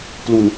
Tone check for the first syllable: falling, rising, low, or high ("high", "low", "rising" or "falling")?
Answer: low